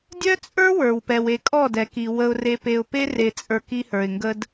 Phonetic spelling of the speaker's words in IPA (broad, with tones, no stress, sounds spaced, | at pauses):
dʲ œ˦ t͡sʼ ə˞˦ w ə˞˨ w p ɛ˨ w e˨ kʼ ɔ˦˨ d ɛ˨ k i˨ w ə˦ ʊ̯ r e˦ p e˨ ʊ̯ p e˦ r e˨ t͡sʼ ə˞˨ k i˦ h ə˞˨ ɪ̯ ŋ ɡ ə˦ d